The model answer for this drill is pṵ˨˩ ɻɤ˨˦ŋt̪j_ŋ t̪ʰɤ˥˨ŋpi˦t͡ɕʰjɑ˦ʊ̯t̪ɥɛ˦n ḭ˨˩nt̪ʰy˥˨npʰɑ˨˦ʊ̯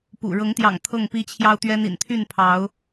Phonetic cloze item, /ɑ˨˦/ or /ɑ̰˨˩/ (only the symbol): ɑ̰˨˩